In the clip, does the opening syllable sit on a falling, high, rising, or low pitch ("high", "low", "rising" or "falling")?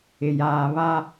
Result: low